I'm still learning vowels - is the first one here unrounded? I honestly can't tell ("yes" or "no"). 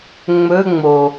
no